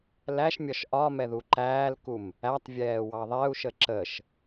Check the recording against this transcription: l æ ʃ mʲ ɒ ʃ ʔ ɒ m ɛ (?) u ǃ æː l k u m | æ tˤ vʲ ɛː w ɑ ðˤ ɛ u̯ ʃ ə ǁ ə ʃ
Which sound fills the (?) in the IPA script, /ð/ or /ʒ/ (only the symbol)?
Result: ð